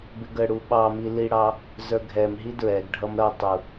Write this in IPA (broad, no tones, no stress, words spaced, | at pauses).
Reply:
bɪɡəɽu ɓɑmi liɽɑ | zə˞ɡʱɛmɦi dɹɛɡɖʱʌm ɾʌtˤu